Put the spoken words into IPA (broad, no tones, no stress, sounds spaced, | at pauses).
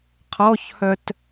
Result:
qʰ ɔ ç h œ t